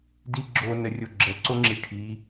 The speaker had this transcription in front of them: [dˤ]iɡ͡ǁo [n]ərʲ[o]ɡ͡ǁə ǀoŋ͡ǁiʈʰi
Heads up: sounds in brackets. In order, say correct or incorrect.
incorrect: d, correct, correct

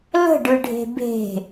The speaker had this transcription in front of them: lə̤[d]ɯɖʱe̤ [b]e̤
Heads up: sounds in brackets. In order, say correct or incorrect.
incorrect: ɖ, correct

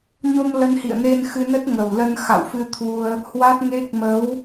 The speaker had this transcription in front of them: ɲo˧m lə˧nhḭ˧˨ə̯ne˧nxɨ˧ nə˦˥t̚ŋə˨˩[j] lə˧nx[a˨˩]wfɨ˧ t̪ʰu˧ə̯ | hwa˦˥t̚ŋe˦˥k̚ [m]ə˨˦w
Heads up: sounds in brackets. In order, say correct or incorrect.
incorrect: w, incorrect: a̰˧˨, correct

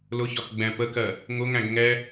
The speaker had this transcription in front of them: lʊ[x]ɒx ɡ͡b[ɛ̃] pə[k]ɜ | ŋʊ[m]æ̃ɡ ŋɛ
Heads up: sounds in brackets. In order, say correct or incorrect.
incorrect: ç, correct, correct, incorrect: ŋ

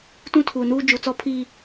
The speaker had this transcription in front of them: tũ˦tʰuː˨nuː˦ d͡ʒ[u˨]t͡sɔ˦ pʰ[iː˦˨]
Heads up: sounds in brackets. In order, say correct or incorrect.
correct, correct

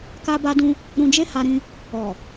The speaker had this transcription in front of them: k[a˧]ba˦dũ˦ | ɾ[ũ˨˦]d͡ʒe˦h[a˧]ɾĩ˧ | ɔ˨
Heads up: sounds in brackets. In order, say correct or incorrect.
incorrect: a˦, incorrect: ũ˧, correct

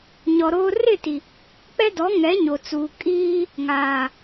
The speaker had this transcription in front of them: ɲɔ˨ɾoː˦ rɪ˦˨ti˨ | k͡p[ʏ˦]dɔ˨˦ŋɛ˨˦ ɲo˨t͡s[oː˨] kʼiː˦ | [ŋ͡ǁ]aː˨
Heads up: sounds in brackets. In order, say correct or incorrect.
incorrect: ɛ˦, incorrect: uː˨, incorrect: ŋ

